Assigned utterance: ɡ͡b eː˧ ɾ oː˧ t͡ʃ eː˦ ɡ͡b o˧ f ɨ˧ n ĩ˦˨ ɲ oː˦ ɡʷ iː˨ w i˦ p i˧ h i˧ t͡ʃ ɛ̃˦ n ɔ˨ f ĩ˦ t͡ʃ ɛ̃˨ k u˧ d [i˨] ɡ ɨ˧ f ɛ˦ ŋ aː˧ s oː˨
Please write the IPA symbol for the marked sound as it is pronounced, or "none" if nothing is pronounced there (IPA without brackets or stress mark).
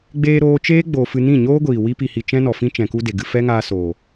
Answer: e˨